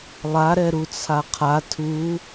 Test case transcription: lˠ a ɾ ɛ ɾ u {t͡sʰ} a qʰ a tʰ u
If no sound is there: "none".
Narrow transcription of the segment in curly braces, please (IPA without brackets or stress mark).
t͡sʰ